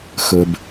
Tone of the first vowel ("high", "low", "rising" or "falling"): low